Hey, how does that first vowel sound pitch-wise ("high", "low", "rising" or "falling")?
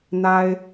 high